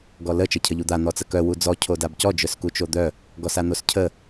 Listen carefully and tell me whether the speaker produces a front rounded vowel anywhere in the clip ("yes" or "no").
yes